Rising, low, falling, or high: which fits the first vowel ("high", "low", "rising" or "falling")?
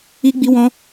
high